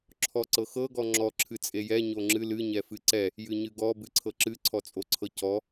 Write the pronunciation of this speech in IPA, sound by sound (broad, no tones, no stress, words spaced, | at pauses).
ǁʰɔǀɤxɤ ɡɔŋ͡ǁɔ ǁʰɨt͡sʼejɛ ɲoŋ͡ǁɨ lɨ ɲɛfɨǀɛ | jɨɲɨɡɔ bɨǀʰɤǁɨ ǀʰɔt͡sʼoǀʰɤcɔ